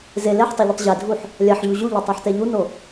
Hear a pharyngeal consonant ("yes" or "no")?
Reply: yes